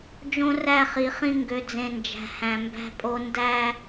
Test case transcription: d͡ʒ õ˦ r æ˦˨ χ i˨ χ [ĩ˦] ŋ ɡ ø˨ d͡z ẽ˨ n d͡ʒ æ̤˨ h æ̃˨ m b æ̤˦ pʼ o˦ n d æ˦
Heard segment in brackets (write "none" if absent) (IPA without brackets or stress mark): ĩ˦